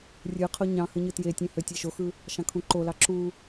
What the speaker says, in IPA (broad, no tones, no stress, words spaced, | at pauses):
rʲɯqʰo ɲɑ̃ hɯɲɯtjetʲẽ høtʲeʃoxɯ | ʃɑ̃kʰũǃolɑ ǁu